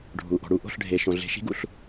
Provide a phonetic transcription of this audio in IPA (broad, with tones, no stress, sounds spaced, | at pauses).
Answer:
ɖʱ u˩ ʔ ɔ̤˩ ɽ u˥˩ ʔ o̤˥˩ ɬ ɖʱ e˩ ʃ õ˩ ɮ e̤˩˥ ʃ i̤˩˥ ɡ ṵ˩ ɬ